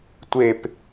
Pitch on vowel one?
falling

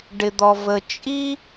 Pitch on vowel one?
low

